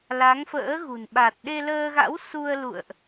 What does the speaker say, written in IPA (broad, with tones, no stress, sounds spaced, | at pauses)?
l a˨˦ ŋ f ə̰ː˧˥ ɣ ṳ˨˩ n ɓ a˨˩ t̚ ɗ e˧ l əː˧ ɣ a̰˧˥ w s u˧ ə̯ l ṵ˧˨ ə̯ ʔ